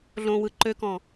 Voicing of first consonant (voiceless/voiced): voiced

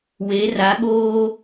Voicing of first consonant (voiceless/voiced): voiced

